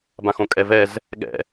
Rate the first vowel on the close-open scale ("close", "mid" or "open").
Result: open